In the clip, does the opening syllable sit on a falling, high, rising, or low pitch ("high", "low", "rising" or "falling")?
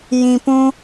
low